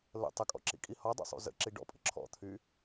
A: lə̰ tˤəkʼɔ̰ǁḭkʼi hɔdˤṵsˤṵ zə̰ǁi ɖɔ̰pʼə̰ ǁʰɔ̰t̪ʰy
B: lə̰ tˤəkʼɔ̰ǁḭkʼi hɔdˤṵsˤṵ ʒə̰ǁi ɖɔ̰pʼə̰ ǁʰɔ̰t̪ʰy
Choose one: A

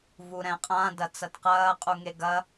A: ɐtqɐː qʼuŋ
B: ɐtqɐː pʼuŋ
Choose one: A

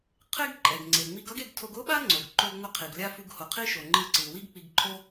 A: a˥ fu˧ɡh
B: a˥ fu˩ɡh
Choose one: A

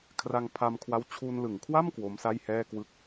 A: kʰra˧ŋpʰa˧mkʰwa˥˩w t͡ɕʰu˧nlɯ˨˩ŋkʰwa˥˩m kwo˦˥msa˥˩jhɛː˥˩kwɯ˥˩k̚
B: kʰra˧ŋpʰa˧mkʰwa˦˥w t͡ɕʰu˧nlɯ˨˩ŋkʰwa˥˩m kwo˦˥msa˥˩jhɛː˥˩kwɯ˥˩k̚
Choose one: B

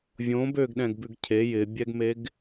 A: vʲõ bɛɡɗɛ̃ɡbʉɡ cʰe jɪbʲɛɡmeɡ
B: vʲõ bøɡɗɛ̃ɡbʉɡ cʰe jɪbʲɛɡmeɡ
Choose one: B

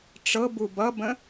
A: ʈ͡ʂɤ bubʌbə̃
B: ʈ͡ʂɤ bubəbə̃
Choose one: A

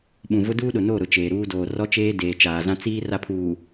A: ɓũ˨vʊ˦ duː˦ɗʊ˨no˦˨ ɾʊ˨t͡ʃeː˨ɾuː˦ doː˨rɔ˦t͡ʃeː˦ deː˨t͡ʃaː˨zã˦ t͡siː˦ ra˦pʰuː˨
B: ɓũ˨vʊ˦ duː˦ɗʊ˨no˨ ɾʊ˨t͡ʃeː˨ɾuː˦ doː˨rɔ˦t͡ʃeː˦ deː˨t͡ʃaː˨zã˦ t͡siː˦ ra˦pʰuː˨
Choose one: A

